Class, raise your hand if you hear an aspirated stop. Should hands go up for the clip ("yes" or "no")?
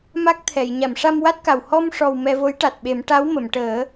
yes